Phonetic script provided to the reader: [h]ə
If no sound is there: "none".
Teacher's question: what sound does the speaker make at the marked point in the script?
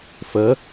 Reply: f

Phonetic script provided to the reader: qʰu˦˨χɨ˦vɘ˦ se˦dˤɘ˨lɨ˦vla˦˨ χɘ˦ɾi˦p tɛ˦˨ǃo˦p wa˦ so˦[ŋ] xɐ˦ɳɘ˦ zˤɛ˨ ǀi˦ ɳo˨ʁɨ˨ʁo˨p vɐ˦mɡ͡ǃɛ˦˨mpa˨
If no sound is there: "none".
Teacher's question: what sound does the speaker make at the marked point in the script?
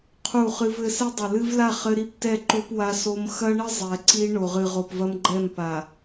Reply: m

